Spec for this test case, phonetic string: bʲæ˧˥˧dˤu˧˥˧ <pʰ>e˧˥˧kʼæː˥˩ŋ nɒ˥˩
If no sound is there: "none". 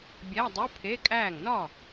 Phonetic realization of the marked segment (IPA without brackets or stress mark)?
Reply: pʰ